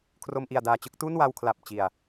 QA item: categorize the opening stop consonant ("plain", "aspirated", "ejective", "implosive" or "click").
aspirated